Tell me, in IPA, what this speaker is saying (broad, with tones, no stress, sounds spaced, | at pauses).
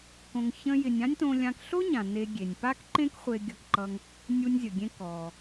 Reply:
k õ˧ ŋ ç ə̃˥ j ɪ˧ nʲ ã˥ nʲ t õ˧ lʲ ã˧ k ɬ o˥ ɲ ã˩ n e˧ ɡʲ e˩ nʲ p a˥ k ǃ ẽ˥ k χʷ e˧ ɡʲ ʌ˧ k ǃ ʌ˧ ŋ | nʲ u˧ nʲ zʲ ə˩ ɡʲ ẽ˧ k ɔ˩